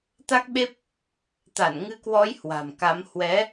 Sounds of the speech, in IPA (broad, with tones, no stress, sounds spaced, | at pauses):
t̪ a˦˥ k̚ ɓ e˦˥ p̚ | t̪ a˧˩ n ŋ ɨ˧ k w ɔ˨˦ j h w a̤˨˩ m k a˨˦ m h w ɛ˨˦